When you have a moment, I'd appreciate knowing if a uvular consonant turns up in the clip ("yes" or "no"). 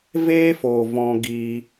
no